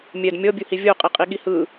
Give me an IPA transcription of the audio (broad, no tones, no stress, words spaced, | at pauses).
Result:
mʲɛd mʲɔbʲuhi vʲo qʼiqʼiɠihɯ